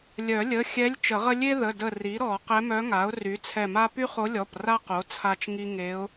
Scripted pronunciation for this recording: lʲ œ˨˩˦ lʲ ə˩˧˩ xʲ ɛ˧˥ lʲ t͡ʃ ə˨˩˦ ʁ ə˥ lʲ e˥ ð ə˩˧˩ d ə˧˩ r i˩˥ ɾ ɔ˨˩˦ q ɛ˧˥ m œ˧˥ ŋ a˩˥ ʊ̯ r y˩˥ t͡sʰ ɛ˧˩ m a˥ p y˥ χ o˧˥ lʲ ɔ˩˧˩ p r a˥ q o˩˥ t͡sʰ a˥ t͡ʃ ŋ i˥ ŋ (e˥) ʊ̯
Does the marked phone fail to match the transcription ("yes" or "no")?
yes